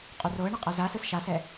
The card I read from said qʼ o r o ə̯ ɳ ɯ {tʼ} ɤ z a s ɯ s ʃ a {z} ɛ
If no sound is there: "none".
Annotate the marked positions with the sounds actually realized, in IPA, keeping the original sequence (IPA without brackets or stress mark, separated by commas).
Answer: qʼ, s